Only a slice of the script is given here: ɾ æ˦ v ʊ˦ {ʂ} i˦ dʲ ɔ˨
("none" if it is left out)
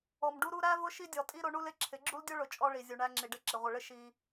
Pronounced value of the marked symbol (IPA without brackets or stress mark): ʃ